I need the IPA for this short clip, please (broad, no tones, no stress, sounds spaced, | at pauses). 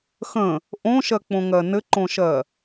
x ə̃ | ʔ õ ʃ ɜ k͡p õ ŋ ɜ n ɘ ǃ õ ʃ ɜ